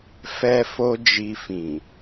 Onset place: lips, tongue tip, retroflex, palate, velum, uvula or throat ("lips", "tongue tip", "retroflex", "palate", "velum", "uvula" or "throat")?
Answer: lips